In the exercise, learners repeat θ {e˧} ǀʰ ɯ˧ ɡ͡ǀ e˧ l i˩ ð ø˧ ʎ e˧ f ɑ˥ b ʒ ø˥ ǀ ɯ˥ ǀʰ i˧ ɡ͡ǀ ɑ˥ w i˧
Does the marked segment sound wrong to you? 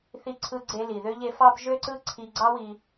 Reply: yes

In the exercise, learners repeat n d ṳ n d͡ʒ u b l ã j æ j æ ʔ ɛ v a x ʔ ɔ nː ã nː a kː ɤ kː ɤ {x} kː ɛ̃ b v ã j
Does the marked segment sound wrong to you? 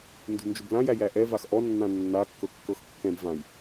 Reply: no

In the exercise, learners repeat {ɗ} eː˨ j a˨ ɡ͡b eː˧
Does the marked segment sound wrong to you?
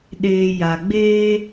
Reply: no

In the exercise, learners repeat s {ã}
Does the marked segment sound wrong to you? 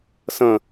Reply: yes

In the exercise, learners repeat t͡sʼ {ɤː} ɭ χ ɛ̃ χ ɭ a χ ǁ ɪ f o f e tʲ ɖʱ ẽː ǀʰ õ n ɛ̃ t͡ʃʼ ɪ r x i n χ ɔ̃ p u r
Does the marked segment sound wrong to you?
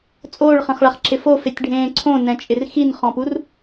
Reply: yes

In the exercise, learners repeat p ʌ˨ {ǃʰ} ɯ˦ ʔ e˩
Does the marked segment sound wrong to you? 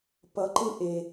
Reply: yes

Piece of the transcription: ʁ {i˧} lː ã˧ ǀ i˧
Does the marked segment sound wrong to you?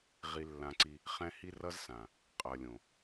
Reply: no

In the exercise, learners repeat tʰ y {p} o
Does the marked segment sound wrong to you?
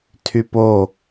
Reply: no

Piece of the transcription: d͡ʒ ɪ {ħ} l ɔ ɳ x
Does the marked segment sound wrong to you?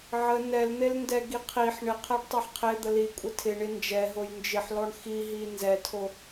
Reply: no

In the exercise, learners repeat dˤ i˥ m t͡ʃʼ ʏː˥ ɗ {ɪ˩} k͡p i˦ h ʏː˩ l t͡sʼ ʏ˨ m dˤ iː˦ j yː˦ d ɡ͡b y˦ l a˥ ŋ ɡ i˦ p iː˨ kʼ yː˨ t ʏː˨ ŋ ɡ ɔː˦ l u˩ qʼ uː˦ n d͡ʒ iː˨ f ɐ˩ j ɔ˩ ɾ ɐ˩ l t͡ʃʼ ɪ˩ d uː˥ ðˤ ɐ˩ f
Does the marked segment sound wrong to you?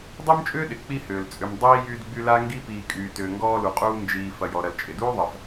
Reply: no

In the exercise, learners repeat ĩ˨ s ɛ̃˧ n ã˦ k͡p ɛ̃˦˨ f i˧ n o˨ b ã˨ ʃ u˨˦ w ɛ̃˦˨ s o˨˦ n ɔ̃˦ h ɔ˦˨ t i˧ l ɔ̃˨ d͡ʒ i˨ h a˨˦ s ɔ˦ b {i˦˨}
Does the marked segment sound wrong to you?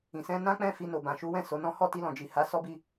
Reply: no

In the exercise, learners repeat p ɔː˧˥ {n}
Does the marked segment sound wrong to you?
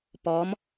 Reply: yes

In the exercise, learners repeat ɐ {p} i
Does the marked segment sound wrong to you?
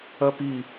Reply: no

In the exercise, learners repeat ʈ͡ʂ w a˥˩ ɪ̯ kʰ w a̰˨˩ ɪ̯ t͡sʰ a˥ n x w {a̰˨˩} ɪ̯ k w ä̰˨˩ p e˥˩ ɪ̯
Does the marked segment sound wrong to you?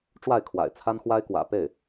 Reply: yes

